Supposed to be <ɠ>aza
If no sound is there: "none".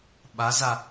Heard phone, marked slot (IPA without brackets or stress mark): ɓ